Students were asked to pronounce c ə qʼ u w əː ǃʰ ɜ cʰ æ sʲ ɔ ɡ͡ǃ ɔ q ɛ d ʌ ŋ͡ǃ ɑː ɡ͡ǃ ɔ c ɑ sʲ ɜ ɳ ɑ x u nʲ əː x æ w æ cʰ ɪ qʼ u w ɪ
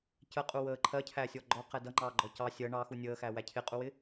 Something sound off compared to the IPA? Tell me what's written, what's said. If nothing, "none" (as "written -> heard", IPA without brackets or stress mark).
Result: none